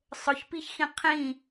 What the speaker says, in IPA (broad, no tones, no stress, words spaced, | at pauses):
sˤʊçpiçxĩ qʰĩ